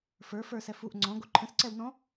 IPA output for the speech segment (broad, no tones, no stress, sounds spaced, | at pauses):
f ə˞ f ə˞ s ɛ f u ʔ ŋ͡ǀ ɔ̃ ɡ o ǃʰ ə̃ s ǀ ɛ w n ɔ̃